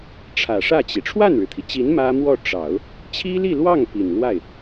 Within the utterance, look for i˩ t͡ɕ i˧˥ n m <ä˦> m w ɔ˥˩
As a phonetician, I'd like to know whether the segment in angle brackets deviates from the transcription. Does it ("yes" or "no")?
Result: yes